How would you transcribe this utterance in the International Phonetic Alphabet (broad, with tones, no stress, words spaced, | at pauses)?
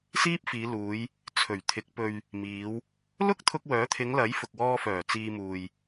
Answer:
siː˥p̚fiː˨˧luː˨˧j | t͡sʰɵ˨˩ɥt̪ʰɪ˨˥k̚ pɵ˨ɥ | miː˨˧w | lʊ˥k̚t̪ʰʊ˧k̚wœː˨˥t̪ʰɪ˨˧ŋ lɐ˨˥jfʊ˨k̚wɔː˧fœː˨˩ t͡siː˧muː˨j